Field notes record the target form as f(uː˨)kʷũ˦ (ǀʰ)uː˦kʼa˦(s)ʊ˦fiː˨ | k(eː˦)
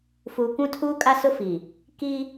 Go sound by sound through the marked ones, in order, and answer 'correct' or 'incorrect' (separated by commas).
correct, incorrect, correct, incorrect